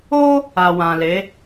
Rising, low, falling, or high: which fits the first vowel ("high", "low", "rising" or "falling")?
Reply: high